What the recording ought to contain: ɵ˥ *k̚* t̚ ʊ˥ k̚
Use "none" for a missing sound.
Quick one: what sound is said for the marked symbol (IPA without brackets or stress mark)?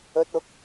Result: none